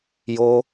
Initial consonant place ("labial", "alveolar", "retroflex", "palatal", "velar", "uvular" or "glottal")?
palatal